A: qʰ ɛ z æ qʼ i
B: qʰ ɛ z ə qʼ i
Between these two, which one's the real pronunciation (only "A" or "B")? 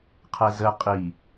B